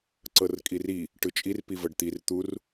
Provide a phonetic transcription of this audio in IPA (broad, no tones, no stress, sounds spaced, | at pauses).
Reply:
ǀ ɤ r kʼ i r i | ʈ ɯ t͡ʃʼ i r p i v ɤ ɖ t̪ i r t̪ u r